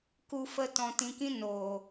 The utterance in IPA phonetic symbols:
k u˨ f ə˨ t ɔ̃˨ t ĩ˨ k ĩ˧ n o˨

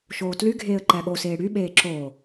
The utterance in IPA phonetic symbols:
ʃ oː t l y ɡʱ eː ə̯ ǃ æ ɠ o s eː ɽ y ɓ eː ǁ o

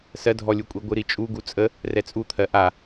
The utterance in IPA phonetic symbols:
s ɜ dʱ ɔ lʲ u kʷʼ i ɡʷ ɨ ɾ i t͡ʃʼ u ɡ u t͡sʼ ə | r ɛ t͡sʼ u t̪ʰ ɜ ʔ a

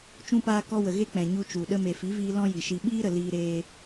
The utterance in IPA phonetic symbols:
t͡ʃ ũ˧ p aː˧ k ɔ˧ w ə˨ ɣ e˦ k͡p ɛ̃˨ ɲ u˧ t͡ʃ u˨ ɗ ə˧ m e˨ f i˨˦ v iː˧ l ɔ̃˦ j i˨ ʃ i˧ ɓ iː˦ ɾ ə˨ l iː˧ ɾ eː˧

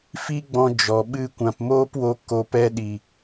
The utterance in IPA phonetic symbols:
f i˦ ɡ͡b ɔ̃˧ d͡ʒ ɔ˨ ɓ ɨ˧ kʷ ã˨ p m oː˦ p w o˧ k o˨ p ɛ˧ ɗ i˨

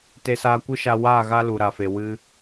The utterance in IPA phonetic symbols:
t e˧ s aː˧ kʷ ɨ˦ ʃ a˧ w aː˦˨ ɣ a˦ l u˨ ɾ a˨ f e˨ w ɨ˧

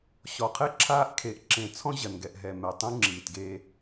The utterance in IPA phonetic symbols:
ɕ ɔ˨ qʰ ɛ˦ ǁʰ aː˦ ʔ kʰ e˨ ʔ ǁ ẽ˨ t͡sʰ ɔ̃˦ ʑ ɐ˨ n ɡ ɛ˨ ʔ ɦ ɛ˨ m ɛ˨ tˤ ũ˦ ŋ͡ǁ iː˨ t ɡ e˦

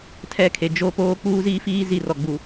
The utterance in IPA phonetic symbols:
tʰ ɛ˦ kʰ e˨ d͡ʒ o˦ p oː˦ k͡p uː˦ z iː˦ f iː˦ z i˦˨ r ɔ˨ ɡ͡b u˨

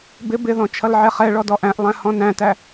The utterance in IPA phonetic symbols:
b ɪ b ɪ ð ɔ̃ t͡ʃʰ ʌ l ʕ ɛ χ ɛ ɭ ɔ d ɔ ʔ æ̃ ʔ lˠ æ̃ h ɔ̃ n æ̃ t æ

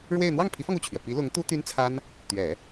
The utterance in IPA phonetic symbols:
ɻ w e˥˧ ɪ̯ n̪ w ɑ˥˩ ŋ pʰ i˧˥ f ɑ˧ ŋ u˥˩ t͡ɕʰ ɥ ɛ˩ p i˧˥ l ʊ˧˥ ŋ t̪ u˥ t̪ y˥ n t͡sʰ a˥ n | t̪ ɥ ɛ˨˩˦

